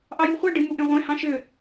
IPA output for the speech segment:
ʔ ɑ j u χʷ æ ɖ ɯ m u ʔ ẽ ʁʷ ẽ h ɑ̃ ʃ ø

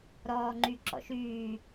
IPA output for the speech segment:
ɾ ɔː ŋ͡ǃ y ǁ ɔ̰ ʃ yː

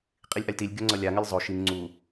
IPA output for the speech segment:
qʼ i lʲ ʔ a lʲ t i lʲ ɡʲ o ŋ͡ǀ ʌ lʲ a ŋ ɜ lʲ zˤ o ʃ i ŋ ŋ͡ǀ u

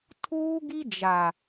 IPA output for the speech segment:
tʰ uː˦ ɡ i˦ d͡ʒ a˨

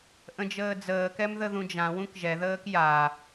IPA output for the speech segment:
ʔ ə̃ d͡ʒ əː d͡z əː k ɛ m ð ə ð ũ d͡ʒ ã w ũ k ʒ ɛ ð əː k j a

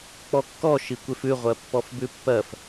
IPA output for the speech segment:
k͡p ɔ kː ɔ ʃ i kʷ e f ʉ ʁʷ ɜ pː ɔ f b ʉ pː ɜ f

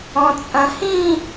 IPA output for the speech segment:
ɔ̃ t͡sʼ ɐ̃ h ĩ

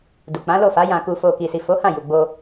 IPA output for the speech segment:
d u˨ k͡p ã˨˦ l o˦˨ f a˨˦ j ã˧ k u˧ f o˧ k i˨ s i˨ f o˨˦ h ã˦˨ j u˨ ɡ͡b o˧

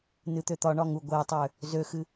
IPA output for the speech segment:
n ɨ t̪ ø t̪ ɒ ɳ ɒ ŋ u ɡʷ ɛ tˤ ø | z ø x ɨ

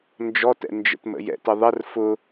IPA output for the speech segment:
n d͡ʒ ɔ t ɛ̰ n d͡ʒ ə̰ t m ə̰ j ɛ̰ t ə ðˤ ə r f ʊ

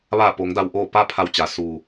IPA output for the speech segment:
ʋ aː˧˩ p o˩˧ ŋ d a˩ w ʔ oː˧˩ p a˥˨ pʰ a˧˩ w t͡ɕ a˩˧ s uː˩

